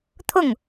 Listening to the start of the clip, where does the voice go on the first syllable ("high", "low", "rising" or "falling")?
falling